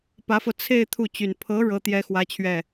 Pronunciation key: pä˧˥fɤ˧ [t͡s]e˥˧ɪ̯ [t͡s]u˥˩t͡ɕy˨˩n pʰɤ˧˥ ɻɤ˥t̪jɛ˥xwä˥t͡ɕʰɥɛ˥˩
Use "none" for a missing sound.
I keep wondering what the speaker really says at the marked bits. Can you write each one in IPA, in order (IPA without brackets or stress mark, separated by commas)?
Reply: t͡sʰ, t̪ʰ